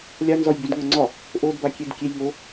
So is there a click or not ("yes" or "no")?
yes